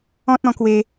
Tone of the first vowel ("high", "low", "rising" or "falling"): high